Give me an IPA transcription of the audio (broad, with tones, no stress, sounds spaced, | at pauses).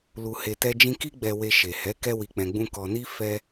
l u˧ h e˧ t ɛ˦ d͡ʒ ĩ˦ k i˦ ɡ͡b ɛ˧ w e˧ ʃ e˨ h ɛ˨˦ k ɛ˦ w i˧ k͡p ɛ̃˧ ɡ͡b ũ˦ k ɔ˧ n i˦ f ɛ˦